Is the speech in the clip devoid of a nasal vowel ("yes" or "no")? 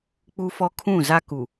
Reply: no